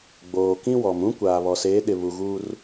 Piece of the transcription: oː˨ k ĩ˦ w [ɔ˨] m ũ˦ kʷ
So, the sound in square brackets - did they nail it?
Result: yes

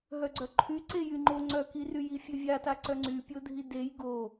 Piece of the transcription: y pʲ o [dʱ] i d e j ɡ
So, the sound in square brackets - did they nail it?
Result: yes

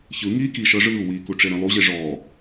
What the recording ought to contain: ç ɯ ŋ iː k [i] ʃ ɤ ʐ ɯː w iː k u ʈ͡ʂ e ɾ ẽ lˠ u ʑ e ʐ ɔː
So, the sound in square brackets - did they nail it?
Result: yes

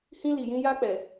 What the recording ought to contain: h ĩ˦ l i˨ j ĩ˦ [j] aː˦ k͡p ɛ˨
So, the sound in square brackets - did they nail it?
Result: yes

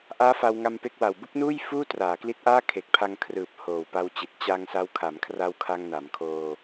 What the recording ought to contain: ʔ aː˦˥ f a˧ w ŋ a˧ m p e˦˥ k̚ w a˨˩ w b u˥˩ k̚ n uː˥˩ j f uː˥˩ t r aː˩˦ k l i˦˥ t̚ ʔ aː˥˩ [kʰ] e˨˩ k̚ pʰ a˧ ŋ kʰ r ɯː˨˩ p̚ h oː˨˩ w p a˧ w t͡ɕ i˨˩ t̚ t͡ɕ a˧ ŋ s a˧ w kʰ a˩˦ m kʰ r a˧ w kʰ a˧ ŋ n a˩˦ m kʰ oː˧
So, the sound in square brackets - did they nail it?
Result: yes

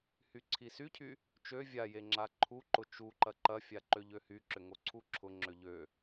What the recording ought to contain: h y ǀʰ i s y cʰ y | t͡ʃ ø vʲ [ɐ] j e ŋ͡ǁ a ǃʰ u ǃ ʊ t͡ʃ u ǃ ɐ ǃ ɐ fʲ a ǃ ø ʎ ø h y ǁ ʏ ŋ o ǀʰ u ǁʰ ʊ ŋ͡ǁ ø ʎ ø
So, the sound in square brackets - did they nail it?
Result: no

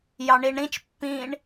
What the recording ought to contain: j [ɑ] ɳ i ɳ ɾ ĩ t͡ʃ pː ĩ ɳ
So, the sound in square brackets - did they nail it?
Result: yes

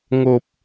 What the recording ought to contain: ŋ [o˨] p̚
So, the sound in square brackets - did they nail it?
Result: yes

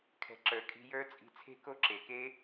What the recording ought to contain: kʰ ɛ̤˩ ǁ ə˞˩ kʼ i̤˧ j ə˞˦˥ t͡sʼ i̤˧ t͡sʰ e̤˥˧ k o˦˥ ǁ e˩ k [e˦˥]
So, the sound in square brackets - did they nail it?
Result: yes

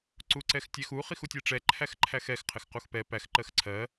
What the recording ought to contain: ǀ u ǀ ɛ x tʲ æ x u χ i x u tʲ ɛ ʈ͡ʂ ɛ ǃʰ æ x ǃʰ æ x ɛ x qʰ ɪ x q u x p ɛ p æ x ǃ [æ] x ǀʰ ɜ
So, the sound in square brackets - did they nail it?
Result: no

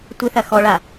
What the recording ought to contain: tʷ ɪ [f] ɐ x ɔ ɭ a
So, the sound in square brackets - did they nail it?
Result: no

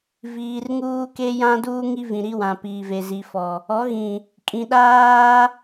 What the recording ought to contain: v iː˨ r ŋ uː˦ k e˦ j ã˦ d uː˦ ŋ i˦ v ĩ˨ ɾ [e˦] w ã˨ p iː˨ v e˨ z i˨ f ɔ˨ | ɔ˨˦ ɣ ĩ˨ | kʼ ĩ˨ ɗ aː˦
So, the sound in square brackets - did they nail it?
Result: no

